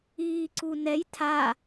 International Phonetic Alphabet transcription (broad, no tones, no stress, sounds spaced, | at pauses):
iː ǀ u n ɛ j tʰ a